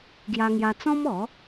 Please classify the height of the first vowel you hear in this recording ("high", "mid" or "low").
low